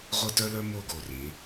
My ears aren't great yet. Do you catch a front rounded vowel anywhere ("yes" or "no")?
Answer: yes